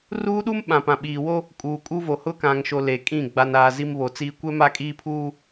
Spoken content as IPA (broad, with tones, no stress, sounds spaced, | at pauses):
r uː˦ ɗ u˦ m ɓ ã˨ p ã˨ ɓ iː˨ w o˦ | kʼ uː˨ kʼ u˦ v o˨ h ʊ˦ k ã˨ ŋ ʃ o˨ l e˨ kʼ ĩ˦˨ ɡ͡b a˨ n aː˨ z i˦ m β o˨ t͡s iː˦ kʷ ɛ˦ m a˦ kʼ iː˦ pʰ uː˦